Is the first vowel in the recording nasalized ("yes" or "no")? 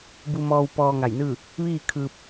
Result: no